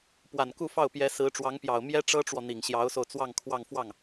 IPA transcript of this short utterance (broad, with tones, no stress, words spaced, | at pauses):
pwa˨˩nku˥˧fɑ˥˩ʊ̯pjɛ˧˥ sɹ̩˧˥ʈ͡ʂwɑ˧˥ŋpjɑ˨˩ʊ̯ mjɛ˥ʈ͡ʂɤ˥ʈ͡ʂwɔ˨ n̪i˨˩ŋɕjɑ˧˥ʊ̯so˧ʊ̯ t͡swɑ˥˧ŋkʰwɑ˥˧ŋ fwɑ˥˩ŋ